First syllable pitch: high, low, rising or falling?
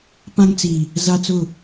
high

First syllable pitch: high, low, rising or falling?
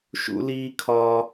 high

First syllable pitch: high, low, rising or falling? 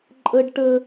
high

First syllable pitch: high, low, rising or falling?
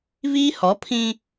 high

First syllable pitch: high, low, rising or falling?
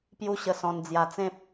high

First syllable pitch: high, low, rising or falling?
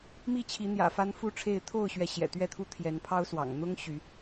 falling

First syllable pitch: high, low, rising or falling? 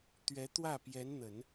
rising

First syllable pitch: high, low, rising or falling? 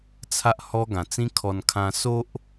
high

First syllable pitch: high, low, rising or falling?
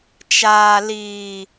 low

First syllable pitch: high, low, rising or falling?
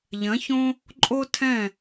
rising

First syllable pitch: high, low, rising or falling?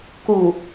low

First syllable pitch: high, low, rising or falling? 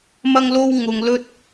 high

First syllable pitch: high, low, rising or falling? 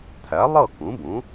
rising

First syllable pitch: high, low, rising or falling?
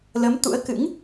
rising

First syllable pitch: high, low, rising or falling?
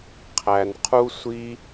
low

